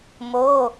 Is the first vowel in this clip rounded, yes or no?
yes